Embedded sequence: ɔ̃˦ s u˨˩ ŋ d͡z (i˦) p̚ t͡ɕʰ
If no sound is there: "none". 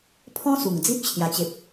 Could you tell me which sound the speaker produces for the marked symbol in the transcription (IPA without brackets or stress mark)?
i˦